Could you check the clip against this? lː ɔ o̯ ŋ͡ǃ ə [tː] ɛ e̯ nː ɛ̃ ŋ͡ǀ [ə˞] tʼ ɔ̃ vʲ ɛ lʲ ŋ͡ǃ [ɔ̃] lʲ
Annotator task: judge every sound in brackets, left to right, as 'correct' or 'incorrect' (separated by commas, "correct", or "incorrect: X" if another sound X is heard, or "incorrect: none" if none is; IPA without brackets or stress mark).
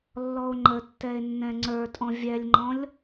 correct, correct, correct